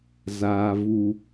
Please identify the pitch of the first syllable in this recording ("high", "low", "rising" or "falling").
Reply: low